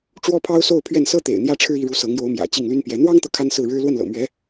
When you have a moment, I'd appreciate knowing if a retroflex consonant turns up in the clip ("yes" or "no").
yes